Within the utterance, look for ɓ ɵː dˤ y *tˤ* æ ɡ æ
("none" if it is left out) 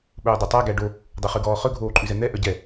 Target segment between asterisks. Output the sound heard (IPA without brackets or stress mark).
tˤ